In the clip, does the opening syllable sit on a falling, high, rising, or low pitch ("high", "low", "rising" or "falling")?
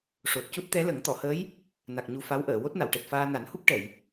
low